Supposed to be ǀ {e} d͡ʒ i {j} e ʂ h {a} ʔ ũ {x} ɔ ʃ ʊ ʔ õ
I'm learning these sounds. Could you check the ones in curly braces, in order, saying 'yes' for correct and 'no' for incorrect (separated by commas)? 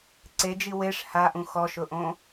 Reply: yes, no, yes, yes